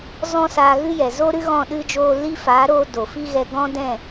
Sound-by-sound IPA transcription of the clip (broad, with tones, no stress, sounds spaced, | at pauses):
z ɔ̃˦ s aː˧ ɣ ɨ˦ j ɛ˨ z o˦ ɾ ɨ˦ ɣ ɔ̃˦˨ ɗ ɨ˦ d͡ʒ oː˦ l i˦ f aː˨˦ ɾ oː˧ d o˨ f i˦ ɣ ɛ˧ ɡ ɔ̃˦ d ɛ̃˦˨